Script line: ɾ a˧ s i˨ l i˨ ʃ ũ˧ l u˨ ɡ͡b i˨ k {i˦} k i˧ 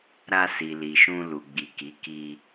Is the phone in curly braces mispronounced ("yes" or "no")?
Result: yes